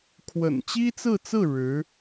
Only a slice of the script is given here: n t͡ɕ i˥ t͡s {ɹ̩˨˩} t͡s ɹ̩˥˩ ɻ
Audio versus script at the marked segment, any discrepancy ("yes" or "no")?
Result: yes